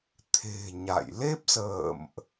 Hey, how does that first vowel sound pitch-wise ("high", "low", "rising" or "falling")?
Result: low